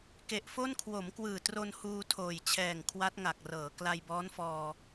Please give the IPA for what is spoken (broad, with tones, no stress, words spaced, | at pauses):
ke˨˩ʔfo˥˩n kʰwo˩˦mkwɯː˨˩tro˧n huː˧tʰoː˨˩jt͡ɕʰɛː˨˩ŋ kʰwa˦˥t̚ŋa˨˩k̚rɤː˩˦ kla˧jbɔː˦˥nfɔː˧